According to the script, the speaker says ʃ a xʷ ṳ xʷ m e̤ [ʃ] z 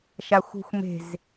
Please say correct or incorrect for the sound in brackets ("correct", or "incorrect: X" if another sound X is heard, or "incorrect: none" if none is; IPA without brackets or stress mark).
incorrect: none